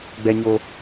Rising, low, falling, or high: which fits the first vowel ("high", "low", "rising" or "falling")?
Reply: high